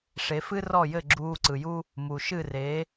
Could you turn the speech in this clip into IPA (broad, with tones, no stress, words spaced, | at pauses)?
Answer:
ʂe˩˥fɨ˥rɔ˥˩jɘ˥˩ ɡ͡ǁuː˧ǀɯ˩ju˥ | mu˩ʃɨ˥˩reː˩˥